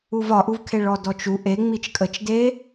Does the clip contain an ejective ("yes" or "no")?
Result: yes